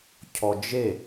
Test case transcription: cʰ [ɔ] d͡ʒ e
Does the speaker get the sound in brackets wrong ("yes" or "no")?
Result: no